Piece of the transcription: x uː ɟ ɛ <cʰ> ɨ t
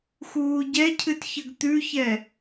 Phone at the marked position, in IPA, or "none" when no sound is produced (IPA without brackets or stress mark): cʰ